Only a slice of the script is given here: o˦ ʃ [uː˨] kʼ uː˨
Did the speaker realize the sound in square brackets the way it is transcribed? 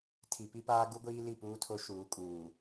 no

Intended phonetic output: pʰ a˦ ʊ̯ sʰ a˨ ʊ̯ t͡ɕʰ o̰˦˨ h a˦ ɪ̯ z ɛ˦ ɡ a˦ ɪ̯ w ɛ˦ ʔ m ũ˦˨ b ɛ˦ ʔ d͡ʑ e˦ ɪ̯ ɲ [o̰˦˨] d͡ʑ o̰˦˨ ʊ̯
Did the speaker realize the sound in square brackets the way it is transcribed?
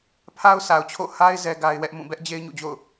no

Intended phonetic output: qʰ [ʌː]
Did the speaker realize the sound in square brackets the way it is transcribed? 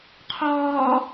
no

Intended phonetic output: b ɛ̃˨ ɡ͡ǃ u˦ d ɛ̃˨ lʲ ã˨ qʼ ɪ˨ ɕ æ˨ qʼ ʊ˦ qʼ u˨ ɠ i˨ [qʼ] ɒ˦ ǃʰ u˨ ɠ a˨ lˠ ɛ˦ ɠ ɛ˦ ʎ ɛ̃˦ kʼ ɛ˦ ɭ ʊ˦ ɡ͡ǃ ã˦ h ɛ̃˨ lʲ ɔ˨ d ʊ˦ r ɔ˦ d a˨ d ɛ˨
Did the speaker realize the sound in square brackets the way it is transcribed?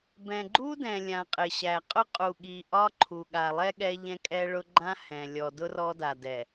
no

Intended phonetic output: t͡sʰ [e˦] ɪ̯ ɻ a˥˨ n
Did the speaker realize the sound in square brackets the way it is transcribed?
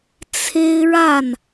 yes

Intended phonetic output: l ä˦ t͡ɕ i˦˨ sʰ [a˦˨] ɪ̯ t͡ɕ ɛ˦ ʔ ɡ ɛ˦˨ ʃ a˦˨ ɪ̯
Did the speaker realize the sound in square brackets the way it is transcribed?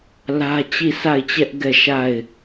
yes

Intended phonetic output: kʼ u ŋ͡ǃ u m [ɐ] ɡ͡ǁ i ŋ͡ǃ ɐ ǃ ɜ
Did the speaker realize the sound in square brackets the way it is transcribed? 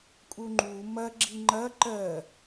yes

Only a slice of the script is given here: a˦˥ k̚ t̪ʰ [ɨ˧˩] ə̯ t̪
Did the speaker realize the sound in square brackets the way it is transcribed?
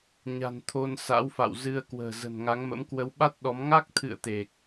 no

